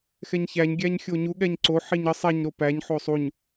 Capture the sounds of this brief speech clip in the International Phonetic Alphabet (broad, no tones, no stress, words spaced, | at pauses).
xɛɲçæɲ ɡʲæɲxʲoɲu ɠɛɲǀo ħiɲə sˤɛɲ ɾopæɲ ħosˤuɲ